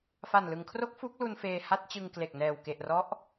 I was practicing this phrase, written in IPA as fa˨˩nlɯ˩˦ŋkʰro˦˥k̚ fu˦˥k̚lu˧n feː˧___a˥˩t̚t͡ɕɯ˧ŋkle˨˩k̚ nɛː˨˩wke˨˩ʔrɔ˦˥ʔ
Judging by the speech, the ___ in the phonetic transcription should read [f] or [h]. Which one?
h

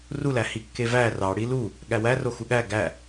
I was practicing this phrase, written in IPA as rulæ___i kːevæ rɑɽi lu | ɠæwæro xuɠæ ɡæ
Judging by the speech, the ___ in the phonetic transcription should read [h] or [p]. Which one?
h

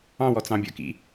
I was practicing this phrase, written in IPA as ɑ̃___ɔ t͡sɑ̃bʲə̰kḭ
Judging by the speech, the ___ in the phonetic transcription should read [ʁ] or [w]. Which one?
w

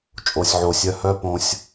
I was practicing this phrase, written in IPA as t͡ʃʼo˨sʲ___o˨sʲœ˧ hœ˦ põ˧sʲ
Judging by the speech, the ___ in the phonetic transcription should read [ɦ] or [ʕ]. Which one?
ʕ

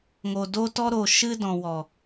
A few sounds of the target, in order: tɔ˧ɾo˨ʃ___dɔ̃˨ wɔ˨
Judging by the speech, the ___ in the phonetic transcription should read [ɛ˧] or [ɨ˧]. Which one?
ɨ˧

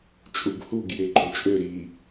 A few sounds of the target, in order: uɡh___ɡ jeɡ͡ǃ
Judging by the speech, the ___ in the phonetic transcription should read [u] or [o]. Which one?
u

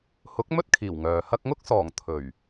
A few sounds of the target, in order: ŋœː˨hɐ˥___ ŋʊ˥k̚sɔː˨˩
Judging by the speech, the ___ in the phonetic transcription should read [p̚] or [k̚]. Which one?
k̚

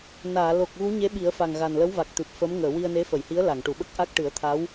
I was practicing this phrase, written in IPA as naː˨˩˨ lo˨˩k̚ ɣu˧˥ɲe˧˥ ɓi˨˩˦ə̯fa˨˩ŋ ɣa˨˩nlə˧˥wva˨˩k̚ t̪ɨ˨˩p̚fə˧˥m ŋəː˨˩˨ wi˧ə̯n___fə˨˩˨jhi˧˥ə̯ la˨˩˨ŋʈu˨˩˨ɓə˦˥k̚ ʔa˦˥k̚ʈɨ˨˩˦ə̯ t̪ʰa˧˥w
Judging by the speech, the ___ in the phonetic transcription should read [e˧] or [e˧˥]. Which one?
e˧˥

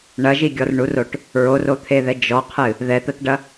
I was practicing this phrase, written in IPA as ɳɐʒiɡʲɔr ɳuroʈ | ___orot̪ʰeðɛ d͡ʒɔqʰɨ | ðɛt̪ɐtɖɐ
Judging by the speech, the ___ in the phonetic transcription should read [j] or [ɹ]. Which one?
ɹ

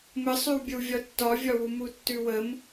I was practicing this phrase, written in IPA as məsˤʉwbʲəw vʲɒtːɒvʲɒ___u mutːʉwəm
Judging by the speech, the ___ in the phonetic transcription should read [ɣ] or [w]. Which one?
w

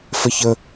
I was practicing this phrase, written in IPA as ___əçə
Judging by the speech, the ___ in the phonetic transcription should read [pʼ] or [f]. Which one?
f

